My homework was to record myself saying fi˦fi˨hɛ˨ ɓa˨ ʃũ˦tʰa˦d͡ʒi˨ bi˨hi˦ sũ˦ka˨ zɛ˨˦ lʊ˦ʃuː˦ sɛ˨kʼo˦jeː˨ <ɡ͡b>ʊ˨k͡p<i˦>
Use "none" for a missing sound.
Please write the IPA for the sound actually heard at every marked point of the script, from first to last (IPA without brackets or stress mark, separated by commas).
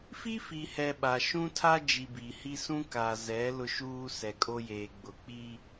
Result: ɡ͡b, i˦